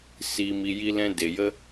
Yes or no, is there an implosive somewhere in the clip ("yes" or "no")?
no